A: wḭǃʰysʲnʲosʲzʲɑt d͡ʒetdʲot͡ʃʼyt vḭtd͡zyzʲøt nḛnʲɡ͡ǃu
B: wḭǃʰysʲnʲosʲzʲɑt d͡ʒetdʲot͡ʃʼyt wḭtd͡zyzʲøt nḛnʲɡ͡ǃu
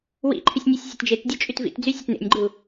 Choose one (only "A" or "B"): A